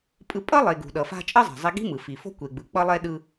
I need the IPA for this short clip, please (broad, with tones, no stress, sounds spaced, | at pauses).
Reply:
pʼ ɯ˧ pʼ ʌ˥ lˠ e˩ ɡ ṳ˩ ɗ ʌ˩ f a̤˧ t͡ʃʼ ʌ˥ zˤ ɛ̤˩ zˤ i˧ ɡ i̤˥ m ɯ˩ f i˩ f o̤˥ kʷ e˩ ɡ͡b ɯ˩ k͡p ʌ˧ lˠ ɛ˧ ɗ ɯ˧